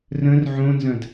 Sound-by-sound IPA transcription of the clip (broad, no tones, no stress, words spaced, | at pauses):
rə̃r ʕõnzɐ̃d